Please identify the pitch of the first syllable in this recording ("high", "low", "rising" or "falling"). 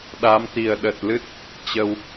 rising